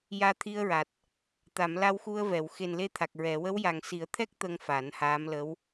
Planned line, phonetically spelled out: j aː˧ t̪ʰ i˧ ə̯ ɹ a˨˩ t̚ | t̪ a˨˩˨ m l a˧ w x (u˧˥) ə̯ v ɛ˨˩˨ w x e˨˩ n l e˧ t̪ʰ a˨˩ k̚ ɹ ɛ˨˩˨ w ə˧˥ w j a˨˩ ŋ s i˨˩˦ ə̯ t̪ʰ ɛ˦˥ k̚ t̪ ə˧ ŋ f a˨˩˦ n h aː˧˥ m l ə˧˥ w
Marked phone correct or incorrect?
incorrect